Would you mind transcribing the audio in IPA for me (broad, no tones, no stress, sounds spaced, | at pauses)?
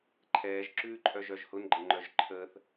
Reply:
ǃʰ ɛː ʒ ǁ ʉː ǃʼ œ ʒ œ ʒ h ʊ n ɡ͡ǃ ə ŋ͡ǃ œ ʒ ǃʰ əː θ